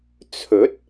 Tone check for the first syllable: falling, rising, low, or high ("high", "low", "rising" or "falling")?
rising